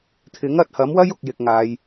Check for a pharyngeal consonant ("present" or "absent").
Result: absent